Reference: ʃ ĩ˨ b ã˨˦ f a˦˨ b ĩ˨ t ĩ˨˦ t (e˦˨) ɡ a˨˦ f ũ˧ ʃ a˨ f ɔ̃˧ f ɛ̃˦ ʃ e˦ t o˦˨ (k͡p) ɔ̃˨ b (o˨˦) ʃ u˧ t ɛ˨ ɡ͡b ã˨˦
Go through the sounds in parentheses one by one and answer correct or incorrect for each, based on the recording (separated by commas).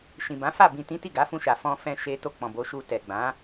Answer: incorrect, correct, correct